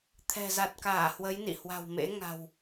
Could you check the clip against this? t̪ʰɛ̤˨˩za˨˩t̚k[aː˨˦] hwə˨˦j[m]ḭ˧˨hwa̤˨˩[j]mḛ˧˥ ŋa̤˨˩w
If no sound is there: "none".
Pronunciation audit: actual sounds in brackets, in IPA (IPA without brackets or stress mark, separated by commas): aː˧˩, n, w